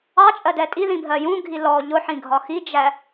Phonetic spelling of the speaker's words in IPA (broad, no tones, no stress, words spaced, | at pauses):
ɑt͡ʃʼɜ dɛtʼiðĩ bʱɜjũɡʱi lɔ ʎʊħĩ ɡʱɒxid͡ʒæ